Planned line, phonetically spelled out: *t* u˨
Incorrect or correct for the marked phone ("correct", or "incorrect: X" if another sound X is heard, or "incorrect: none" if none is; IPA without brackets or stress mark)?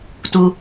correct